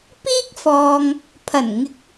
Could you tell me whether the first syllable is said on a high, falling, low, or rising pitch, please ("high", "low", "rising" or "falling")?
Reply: high